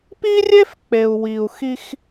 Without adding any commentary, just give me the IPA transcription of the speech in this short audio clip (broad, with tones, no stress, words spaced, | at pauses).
pi˦rʲe˦f k͡pe˨u̯wi˨u̯xi˦x